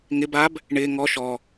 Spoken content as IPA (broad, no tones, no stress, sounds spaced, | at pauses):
ŋ ɪ b a b | ɳ ɪː ŋ ɔ ʃ ɔ